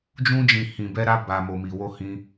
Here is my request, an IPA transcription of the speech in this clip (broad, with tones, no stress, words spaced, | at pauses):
d͡ʒũ˧d͡ʒĩ˨ hĩ˨bɛ˧ɾa˧ ba˨ mo˨mi˨wo˧ hĩ˧